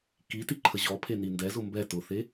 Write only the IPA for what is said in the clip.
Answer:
k i t i ǃʰ ə ʑ ɔ pʰ e n i n d ɛ z ʊ m b ɛ t ʊ θ e

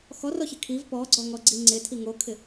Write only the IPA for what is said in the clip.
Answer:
x ɔ r ɔ ç ɪ kʰ i v p ɔ ɡ͡ǀ ɔ ŋ ɔ ɡ͡ǀ i ŋ͡ǀ ɪ tʰ i ŋ o kʰ ɪ

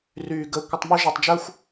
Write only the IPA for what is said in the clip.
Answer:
r yː˦ ɡ əː˦ kʷ ə˦ tˤ m u˥ ʒ a˦ tˤ d͡ʒ ə˥ xʷ

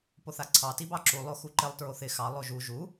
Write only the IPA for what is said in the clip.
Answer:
p o θ a ǀʰ ɑ t i b ɑ ǁ u lˠ o x u ǃ ɪ lˠ t ɹ o θ ɪ x ɑ lˠ o ʒ u ʒ u

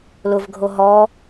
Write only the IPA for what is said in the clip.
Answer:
l ʊ v ɡʱ o ɦ ɔ

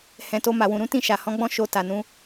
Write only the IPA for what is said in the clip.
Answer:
h ɛ̃˨ t o˧ m a˨ w ũ˨ ɾ ũ˨˦ t ĩ˦˨ ʃ a˨ h ɔ̃˧ ɡ͡b ɔ̃˦ ʃ o˧ t a˨ n ũ˨˦

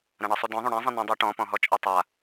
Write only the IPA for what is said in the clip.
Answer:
ɾ ã ɳ ʌ sˤ u d ɔ̃ ðˤ ũ ɽ ã zˤ ĩ n ɛ̃ dˤ u ʈ ɔ̃ p ɔ̃ ɦ ɔ t͡ʃʼ ɛ tˤ a

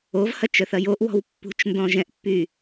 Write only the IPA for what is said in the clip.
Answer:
o v h ɐ t͡ʃ œ θ ɐ j o ʔ w ɔ̤ w pː ṳ t͡ʃ n d ɔ̃ ʒ ɛ̃ ʔ pː y

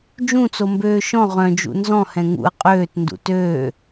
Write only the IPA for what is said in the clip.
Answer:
d͡ʒ ũ t͡s o m b øː ʃ ɔ̃ ʁ œ̃ d͡ʒ ṵ n z ɔ̃ h ɛ̃ ŋ ṵ ə̯ qʼ øː t n d ṵ t øː

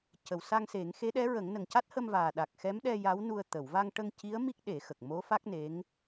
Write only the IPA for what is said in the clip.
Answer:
c ə˨˩ w s a˧ ŋ s e˨˩˦ ŋ x e˧˥ ɗ ɛ˧˥ ɹ ə˨˩˦ ŋ n ə˨˩ ŋ c a˦˥ t̚ h ə˧ m v aː˨˩ ɗ a˨˩ k̚ x ɛ˧˥ m ɗ ɛ˧ j a˧˥ w n u˧ ə̯ t̪ ə˨˩˨ w v a˧ ŋ ʈ ə˧ ŋ c i˧˥ ə̯ m i˦˥ k̚ ɗ e˨˩˦ x ə˨˩ k̚ m o˧˥ f a˦˥ k̚ n e˧˥ ŋ

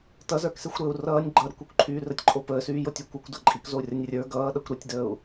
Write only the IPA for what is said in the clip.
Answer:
t ʌ z ə˞ k s e xʷ ɾ əː u̯ r ʌː nʲ ɡ͡ǃ ʌ ɾ ə kʷ o kʷ ǃʰ yː r ə tʲ ǃʼ o p əː s yː j o tʲ o kʷ ʌ kʷ d ʌ ǃʼ i k z o u̯ rʲ ʌ nʲ rʲ ə˞ ɡ ʌː ɗ ʌ kʷ ɾ y tʲ d əː u̯

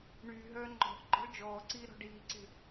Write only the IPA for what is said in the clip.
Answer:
ɳ yː ɦ œː ŋ͡ǃ ɔ̤ ʔ ɡ͡ǃ ɔ̤ ɭ d͡ʒ ɔː ǀ iː ɾ ɔ̤ ɖ iː ǀ e̤

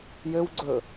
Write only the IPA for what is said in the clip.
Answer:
j ø w ɡ͡ǀ ɵ

